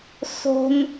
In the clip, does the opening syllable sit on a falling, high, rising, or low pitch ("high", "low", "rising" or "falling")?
high